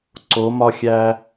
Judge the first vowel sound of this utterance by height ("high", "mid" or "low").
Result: mid